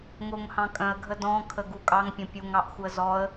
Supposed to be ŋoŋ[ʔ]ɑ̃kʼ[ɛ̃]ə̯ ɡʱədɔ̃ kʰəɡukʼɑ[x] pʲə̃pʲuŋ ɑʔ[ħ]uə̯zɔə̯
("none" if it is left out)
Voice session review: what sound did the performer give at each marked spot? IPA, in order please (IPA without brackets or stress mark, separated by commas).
h, œ̃, ŋ, x